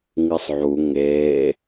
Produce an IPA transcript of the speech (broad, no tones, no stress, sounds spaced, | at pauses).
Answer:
ŋ ɨ sˤ ʕ u ŋ eː